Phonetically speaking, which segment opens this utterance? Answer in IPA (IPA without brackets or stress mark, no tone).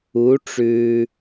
u